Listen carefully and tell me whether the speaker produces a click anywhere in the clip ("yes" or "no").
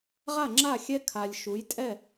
yes